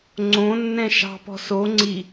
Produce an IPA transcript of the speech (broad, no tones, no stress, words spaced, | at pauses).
ŋ͡ǀõ nːɛ̃ʃɑ̤pɔ̤ so ŋ͡ǀi